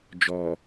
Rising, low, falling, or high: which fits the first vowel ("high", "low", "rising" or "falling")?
low